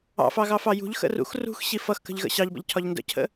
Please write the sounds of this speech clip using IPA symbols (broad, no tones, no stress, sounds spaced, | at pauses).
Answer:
ɑ̰ f ɑ ɣ ɑ f ɑ j ṳ ʎ x ə̰ r ṵ x r ṳ x ɕ i f ʌ x k ə̤ ʎ ɣ ə̰ ɕ ɑ ʎ b ə̰ ʎ cʰ ɒ ʎ n d ə̰ cʰ ə̰